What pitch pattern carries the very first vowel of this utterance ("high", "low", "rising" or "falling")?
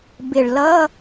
low